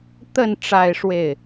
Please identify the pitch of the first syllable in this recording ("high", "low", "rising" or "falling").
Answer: falling